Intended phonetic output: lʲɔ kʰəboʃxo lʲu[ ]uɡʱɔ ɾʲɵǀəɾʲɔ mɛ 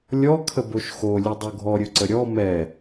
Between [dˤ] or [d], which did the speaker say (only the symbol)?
dˤ